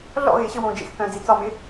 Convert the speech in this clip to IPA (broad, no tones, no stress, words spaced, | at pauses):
ɮɔ̰ɣɪː ɕɘ wõːd͡ʒḛxθœ̃ː d͡zit͡sɒmɪ